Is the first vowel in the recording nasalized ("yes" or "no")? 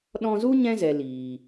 yes